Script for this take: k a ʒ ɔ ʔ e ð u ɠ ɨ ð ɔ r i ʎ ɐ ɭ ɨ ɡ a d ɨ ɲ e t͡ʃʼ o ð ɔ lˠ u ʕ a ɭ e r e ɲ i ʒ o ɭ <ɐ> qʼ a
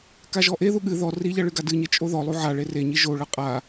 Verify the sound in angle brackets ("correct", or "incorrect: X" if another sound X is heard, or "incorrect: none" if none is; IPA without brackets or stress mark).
correct